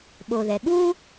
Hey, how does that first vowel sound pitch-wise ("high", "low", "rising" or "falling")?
low